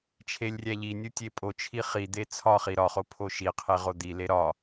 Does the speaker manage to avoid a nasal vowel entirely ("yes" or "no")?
yes